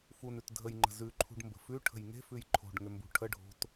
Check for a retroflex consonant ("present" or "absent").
present